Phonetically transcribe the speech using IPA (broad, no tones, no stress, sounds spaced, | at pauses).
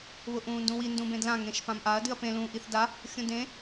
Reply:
β ʊ ʔ ũː n d ũ w i n d ũ b ẽ d l ã ŋ ẽ ʃ p ã m ʔ a ɐ̯ d ɨ ɐ̯ p ẽ l ũː ʔ i θ d a | xʲ ũ d ẽ